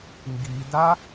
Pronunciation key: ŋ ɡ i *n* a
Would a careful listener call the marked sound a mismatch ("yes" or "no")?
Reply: yes